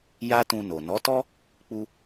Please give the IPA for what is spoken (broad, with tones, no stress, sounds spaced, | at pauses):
j a˦ t ũ˧ n o˨ n ɔ˨˦ t ɔ˦ | k͡p u˧